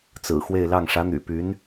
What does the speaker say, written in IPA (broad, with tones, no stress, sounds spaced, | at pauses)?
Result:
t͡s ɹ̩˨˩ x w e˥˧ ɪ̯ l ɑ˥˩ ŋ ʂ ä˧˥ n̪ y̰˨˩ p y˧˥ n